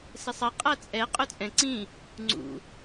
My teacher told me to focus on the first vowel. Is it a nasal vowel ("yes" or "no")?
no